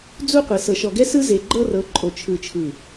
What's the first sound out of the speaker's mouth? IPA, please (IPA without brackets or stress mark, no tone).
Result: d͡z